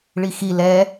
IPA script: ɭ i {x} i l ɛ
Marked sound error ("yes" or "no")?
no